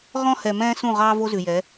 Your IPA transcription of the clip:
ʁ ɔ̃˦ h ɛ˨ m ɛ̃ː˦ s ũ˦˨ ʁ ɑː˦ v o˦ z ʉ˨ j ɛ˨˦

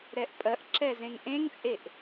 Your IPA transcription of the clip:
ɾ ɛ ʔ pʼ ɜ ʔ ǁ ɛ z ẽ ŋ ʔ ẽ ŋ t͡sʼ e ʔ

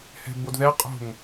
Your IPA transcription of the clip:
h ɛ̤ b o d ð ɛ qʼ o̤ ŋ

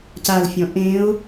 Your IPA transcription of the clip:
c a l fʲ ɔ̃ ʔ ẽ ʊ̯

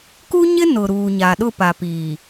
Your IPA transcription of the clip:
k u˦ ɲ ɪ˦ n ʊ˨ ɾ uː˨ ɲ a˨ ɗ ʊ˦˨ p a˨ p iː˨

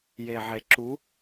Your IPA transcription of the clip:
j e ʕ e ǁ u

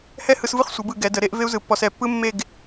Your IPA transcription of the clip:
h ɛ˥˧ h ɯ˧ s v ɯ˥˧ χ sʷ ɯ˩˧ b ɯ˧˩ ɡ ɛ˩˧ d ə˩˧ ɾ e˥˧ ʔ v e˥ u̯ z ɯ˩˧ pː ɔ˧ s ɛ˧˩ pː ɯ˥ mː e˥˧ ɡ

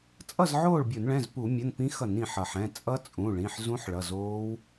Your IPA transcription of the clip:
t͡sʼ ʌ˥˨ z ʕ oː˥˨ ɭ bʲ o˧˩˧ n ɭ ɛ̃˩˧˩ z p u˧˩˧ mʲ ʌ˩˧˩ n p ĩ˦˥ x ʌ˧˩˧ n ĩ˩ ħ ʌ˩ ħ ɛ̃˩˧˩ t͡sʼ ʌ˦˥ t͡sʼ ũ˩˧˩ ɭ ĩ˩˧˩ ħ z ũ˦˥ ħ ɭ ʌ˩˧˩ z oː˦˥ w

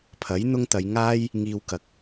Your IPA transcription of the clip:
pʰ ɐ˨˥ j n̪ ʊ˥ ŋ t̪ ɐ˨˧ j ŋ aː˥ j | ŋ iː˧ w k ɐ˨ k̚

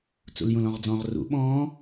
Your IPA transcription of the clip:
t͡s ṵ l j ũ l ɔ̃ ʁ d͡z ɔ̃ ʁ r ṵ ɓ ɔ̃ː

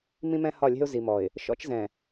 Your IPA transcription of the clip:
m ĩ˦ m ɛ̃˦ h ɒ˦˨ lʲ ɛ̤˦ ʊ̯ z i˨ m ɔ˨ ɪ̯ | ʃ ɔ̰˦ t͡ʃ z ɛ̃˨

